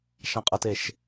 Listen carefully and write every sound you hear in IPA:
ʃ ã qʼ ʌ t e ʃ

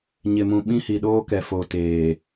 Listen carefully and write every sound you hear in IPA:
ɲ ɪ˨ m ũ˨ ɓ ĩ˦ h i˨ ɗ oː˦ k ɛ˨ f o˨ t eː˨

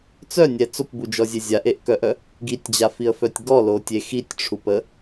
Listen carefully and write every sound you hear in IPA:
t͡s œ nʲ ɛ t͡s o p b u d͡ʒ ɔ zʲ e zʲ a ʔ e ʔ k œ ʔ œ | ɡ i tʲ d͡ʑ a f i ə̯ f œ tʲ ɡ ɔ l o tʲ e x i tʲ ʈ͡ʂʰ u p ə

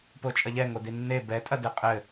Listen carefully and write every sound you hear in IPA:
p o t͡ʃʼ ɐ ʎ ɛ ŋ o d i nː e b ɛ tʼ ɐ d e qʼ ɘ

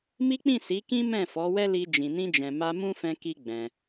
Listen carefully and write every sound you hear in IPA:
m i˦ k͡p ĩ˦˨ s i˨˦ k ĩ˦ m ɛ̃˦˨ f ɔ˨˦ w ɛ˦ l i˧ d͡ʒ ĩ˨ n ĩ˧ d͡ʒ ɛ̃˨ m a˧ m ũ˦ f ɛ̃˧ k i˧ ɡ͡b ɛ̃˧

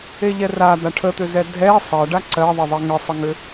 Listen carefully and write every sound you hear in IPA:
e ʎ ɛ r a d̪ a ʈʰ ə t̪ ʏ z ɛ dʱ ɛ sˤ ɜ ɖ a ǀ ɜ ðˤ ə ðˤ e ŋ ə sˤ ə ŋ ʏ

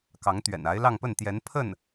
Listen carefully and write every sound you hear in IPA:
k ɑ˧˥ ŋ t̪ ɥ ɛ̰˨˩ n a˧˥ ɪ̯ l ɑ˥˧ ŋ p ə˥˩ n t̪ j ɛ˧˥ n pʰ ə˥˩ n

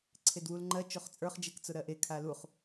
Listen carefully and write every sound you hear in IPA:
ǀʰ e d w u l ŋ͡ǃ ɜ t͡ʃ o χ t͡sʼ ə˞ χ d͡ʒ ɛ k t͡s ʊ ɾ ɜ ʔ e kʰ a l u χ

